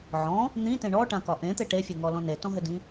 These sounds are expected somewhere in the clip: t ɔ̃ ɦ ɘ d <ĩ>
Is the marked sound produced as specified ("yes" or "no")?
yes